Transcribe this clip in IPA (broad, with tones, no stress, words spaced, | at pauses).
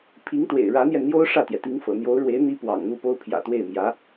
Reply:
pʰi˧˥ŋt̪wḛ˨˩ɪ̯ ɻä˧˥n̪jɛ˧nn̪jo˥ʊ̯ ʂä˥˩t̪jɛ˩t̪i˧˥ŋ fɤ̰˨˩n̪jo˧˥ʊ̯ɻwe˧˥ɪ̯ n̪i˥ pwɑ̰˨˩ŋn̪u˥˩po˥ʊ̯ pʰjä̰˨˩t̪we˥˩ɪ̯mjä˧˥